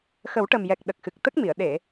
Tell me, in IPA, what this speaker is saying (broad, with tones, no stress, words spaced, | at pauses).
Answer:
xə˨˩˦wʈə˨˩mjɛ˨˩k̚ ɗə˨˩k̚xɨ˨˩k̚t̪ə˦˥k̚mi˨˩˨ə̯ ɗe˨˩˨